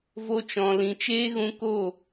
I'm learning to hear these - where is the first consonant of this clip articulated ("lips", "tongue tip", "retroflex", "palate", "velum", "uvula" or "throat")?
lips